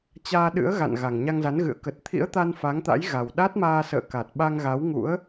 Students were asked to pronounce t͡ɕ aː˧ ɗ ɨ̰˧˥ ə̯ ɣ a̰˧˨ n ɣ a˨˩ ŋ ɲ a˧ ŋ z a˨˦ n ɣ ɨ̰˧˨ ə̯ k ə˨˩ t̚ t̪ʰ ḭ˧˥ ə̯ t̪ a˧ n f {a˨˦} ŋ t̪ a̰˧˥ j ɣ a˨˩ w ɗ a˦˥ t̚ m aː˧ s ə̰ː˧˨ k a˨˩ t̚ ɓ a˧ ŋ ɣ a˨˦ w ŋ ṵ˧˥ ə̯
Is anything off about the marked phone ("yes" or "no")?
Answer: no